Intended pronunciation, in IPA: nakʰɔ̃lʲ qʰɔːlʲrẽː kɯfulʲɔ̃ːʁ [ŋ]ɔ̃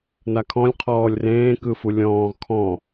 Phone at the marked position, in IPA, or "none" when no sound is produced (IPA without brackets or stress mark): kʰ